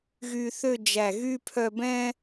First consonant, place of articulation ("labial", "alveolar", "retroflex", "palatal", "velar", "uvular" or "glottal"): velar